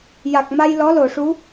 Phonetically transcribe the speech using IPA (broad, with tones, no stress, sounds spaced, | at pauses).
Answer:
j a˨˩ k̚ m a˧ j l ɔ˧˥ l o˨˩˨ ʂ u˧˥